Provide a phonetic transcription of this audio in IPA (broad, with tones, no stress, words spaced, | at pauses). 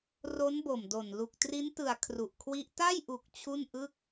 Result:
ro˦˥nbo˨˩mdo˨˩n lu˨˩k̚tri˦˥ntɯ˨˩a̯ kʰru˨˩ʔkʰwi˦˥ʔ ta˥˩jʔu˨˩k̚ t͡ɕʰu˥˩nʔɯ˥˩k̚